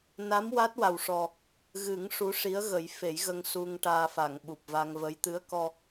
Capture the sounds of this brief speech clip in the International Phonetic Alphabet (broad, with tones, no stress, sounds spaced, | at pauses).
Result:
n a˧˥ m w a˦˥ t̚ w a˨˩ w ʂ ɔ˨˩ | ɣ ɨ˨˩˦ ŋ ʂ u˧˥ ʂ i˧˥ ə̯ ɣ ə˨˩˦ j f e˨˩˦ j ɣ ə˧ ŋ s u˧ ŋ ʈ aː˧ f a˨˩˨ ŋ ɓ u˨˩ p̚ v a˧ ŋ v ə˧˥ j t̪ ɨ˧˥ ə̯ k ɔ˧